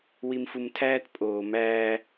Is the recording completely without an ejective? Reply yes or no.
no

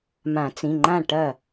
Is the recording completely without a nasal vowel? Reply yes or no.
no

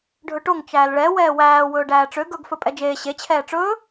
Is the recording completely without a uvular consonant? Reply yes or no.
yes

